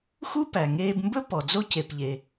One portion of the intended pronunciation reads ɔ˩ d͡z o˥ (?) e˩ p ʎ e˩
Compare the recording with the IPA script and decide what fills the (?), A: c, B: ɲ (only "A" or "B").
A